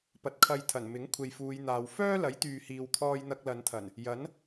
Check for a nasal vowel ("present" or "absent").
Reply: absent